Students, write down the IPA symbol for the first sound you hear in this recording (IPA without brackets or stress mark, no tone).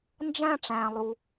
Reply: n